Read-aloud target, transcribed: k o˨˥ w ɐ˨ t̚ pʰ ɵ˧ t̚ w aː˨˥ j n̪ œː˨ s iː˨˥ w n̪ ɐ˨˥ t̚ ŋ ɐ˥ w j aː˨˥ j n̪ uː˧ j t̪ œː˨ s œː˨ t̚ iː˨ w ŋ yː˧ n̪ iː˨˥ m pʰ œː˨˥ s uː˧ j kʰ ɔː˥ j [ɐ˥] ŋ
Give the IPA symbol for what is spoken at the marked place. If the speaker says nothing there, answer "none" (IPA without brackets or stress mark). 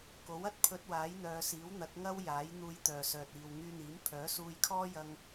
ɐ˧